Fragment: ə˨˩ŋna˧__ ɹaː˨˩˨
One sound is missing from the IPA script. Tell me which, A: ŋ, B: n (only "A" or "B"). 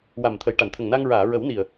A